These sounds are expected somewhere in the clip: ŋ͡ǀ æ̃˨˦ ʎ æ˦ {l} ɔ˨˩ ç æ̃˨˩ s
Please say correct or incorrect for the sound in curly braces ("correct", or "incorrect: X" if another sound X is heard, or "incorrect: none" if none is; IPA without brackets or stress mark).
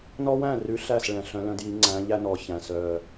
incorrect: n